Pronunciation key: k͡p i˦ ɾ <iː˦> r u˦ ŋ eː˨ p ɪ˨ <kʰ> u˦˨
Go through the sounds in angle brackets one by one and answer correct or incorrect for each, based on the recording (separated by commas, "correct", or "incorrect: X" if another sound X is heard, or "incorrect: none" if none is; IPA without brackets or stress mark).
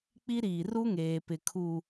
incorrect: iː˨, correct